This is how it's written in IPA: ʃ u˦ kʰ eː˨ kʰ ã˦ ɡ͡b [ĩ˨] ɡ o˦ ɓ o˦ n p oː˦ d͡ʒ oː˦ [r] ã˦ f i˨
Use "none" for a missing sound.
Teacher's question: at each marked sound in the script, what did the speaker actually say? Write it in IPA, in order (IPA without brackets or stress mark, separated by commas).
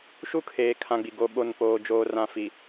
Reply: i˨, r